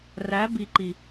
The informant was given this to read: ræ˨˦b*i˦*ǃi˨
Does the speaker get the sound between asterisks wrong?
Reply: yes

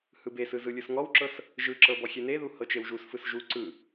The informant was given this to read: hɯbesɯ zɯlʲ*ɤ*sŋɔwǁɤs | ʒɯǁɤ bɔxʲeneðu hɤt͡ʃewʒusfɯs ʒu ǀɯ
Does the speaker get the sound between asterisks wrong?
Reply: yes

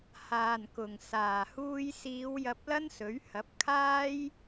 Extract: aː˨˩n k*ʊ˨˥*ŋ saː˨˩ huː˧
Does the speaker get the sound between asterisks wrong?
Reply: yes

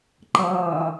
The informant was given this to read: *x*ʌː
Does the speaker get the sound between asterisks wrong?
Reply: yes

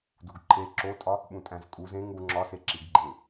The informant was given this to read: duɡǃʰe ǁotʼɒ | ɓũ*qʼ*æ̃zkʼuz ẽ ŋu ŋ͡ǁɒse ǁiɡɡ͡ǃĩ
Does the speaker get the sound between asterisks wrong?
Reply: yes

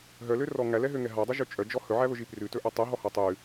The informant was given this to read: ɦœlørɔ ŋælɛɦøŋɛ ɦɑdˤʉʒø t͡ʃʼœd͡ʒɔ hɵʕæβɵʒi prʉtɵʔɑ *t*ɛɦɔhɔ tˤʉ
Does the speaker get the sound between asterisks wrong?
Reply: yes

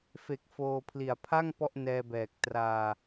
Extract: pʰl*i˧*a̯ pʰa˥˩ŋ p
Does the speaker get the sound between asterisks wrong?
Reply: yes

